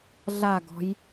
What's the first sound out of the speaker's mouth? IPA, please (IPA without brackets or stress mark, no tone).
ɮ